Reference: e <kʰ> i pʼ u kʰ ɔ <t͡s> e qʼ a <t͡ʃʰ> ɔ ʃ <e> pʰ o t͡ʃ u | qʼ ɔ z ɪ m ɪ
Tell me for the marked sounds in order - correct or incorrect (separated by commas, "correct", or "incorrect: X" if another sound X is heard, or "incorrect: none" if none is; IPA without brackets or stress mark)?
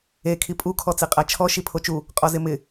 correct, correct, correct, incorrect: i